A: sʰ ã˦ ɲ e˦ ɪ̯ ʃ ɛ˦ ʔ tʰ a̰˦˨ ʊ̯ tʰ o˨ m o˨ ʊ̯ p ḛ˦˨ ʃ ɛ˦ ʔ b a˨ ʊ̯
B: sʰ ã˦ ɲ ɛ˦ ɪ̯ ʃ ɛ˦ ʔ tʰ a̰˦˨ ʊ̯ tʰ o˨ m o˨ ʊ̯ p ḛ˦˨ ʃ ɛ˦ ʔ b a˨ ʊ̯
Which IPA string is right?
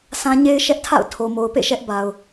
A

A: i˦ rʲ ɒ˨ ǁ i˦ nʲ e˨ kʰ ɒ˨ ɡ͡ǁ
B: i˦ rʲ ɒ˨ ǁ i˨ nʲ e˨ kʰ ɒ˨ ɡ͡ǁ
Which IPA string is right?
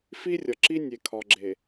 A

